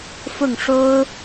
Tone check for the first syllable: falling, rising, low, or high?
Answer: falling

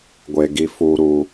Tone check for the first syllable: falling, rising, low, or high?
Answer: low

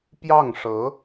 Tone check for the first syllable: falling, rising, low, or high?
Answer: falling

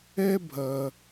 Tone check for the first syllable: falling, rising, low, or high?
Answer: high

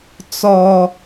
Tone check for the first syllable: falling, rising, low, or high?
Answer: high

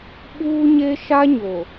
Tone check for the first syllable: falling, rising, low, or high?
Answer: high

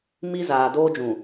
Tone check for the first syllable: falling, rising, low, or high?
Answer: high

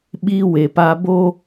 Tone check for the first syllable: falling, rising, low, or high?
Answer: high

